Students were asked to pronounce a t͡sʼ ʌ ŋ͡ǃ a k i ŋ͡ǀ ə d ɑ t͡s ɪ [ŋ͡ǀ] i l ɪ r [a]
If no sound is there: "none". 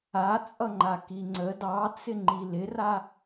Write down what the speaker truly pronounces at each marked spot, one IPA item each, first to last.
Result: ŋ͡ǃ, a

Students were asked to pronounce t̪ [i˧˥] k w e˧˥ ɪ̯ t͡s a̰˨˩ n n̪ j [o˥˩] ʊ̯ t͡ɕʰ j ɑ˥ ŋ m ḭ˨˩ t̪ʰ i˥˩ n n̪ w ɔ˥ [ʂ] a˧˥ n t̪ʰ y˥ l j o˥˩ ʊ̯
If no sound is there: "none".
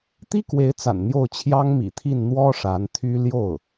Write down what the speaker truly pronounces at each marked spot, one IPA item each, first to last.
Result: i˥, o˥˩, ʂ

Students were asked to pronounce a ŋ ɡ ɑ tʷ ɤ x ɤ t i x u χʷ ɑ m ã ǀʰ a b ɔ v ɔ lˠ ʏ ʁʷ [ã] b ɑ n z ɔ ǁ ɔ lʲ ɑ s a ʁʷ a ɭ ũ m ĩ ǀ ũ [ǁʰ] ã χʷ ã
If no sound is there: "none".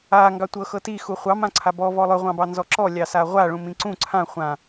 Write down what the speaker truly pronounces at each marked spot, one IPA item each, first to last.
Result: ɑ̃, ǀʰ

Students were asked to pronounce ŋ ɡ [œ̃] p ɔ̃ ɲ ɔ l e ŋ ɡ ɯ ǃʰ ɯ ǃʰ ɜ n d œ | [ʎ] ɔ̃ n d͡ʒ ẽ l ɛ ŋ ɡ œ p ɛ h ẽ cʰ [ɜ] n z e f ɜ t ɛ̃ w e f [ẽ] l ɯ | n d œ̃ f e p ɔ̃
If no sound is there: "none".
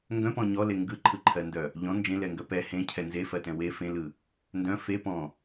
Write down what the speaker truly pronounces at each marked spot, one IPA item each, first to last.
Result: œ̃, ʎ, ɛ, ẽ

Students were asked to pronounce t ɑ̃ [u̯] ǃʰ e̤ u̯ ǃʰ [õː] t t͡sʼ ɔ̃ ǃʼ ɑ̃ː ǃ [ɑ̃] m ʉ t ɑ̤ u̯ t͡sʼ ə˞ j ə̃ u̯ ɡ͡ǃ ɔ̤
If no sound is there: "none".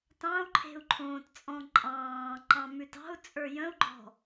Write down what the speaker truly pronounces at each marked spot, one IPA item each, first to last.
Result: u̯, õː, ɑ̃

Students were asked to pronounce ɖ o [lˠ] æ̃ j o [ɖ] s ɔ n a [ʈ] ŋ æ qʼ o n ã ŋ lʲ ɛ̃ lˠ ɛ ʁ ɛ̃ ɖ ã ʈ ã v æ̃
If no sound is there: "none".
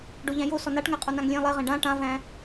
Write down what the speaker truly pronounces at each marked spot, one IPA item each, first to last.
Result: ʎ, none, ʈ

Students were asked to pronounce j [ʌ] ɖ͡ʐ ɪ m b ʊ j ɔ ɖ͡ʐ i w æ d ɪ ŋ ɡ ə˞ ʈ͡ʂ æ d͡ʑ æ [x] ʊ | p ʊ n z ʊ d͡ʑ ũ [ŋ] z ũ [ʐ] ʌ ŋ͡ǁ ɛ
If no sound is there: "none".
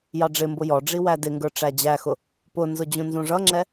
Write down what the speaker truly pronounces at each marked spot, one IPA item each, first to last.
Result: ɑ, x, n, ʐ

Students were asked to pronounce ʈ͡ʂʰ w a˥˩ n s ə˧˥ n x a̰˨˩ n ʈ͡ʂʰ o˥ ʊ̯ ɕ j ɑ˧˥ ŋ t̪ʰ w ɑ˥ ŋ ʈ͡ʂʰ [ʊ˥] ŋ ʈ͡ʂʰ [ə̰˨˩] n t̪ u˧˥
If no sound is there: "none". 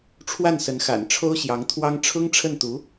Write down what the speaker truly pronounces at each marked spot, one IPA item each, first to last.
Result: ʊ˥, ə˥˩

